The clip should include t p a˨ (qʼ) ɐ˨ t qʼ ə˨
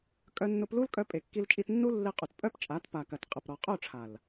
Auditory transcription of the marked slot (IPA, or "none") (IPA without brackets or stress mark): k